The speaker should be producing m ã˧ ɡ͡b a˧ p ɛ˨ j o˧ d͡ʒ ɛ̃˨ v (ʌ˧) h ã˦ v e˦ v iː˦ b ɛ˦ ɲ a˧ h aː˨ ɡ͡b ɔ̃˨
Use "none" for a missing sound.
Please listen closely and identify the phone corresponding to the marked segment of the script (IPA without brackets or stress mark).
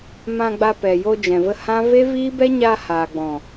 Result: ə˧